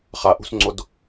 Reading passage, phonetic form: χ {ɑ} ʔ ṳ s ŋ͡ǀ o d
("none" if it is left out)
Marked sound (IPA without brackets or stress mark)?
a